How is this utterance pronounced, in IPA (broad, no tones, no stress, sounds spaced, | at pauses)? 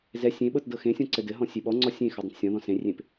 z ɛ sʲ ẽ ɓ ɤ t d ɤ x ẽ sʲ ɔ̃ ǀ ɘ d ɘ ɦ ɔ̃ sʲ e ɓ ɔ ŋ͡ǀ ɔ sʲ ẽ x ɘ dˤ ẽ t sʲ ɔ̃ ð ɔ̃ s ẽ rʲ ẽ p